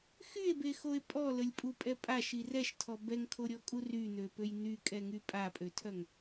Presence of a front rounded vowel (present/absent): present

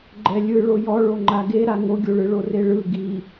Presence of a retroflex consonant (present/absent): present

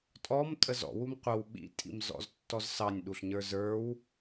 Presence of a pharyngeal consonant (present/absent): absent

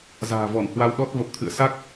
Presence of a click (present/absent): absent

